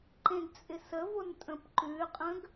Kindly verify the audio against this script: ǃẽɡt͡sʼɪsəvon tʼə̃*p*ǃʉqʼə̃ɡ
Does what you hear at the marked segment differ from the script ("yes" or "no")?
no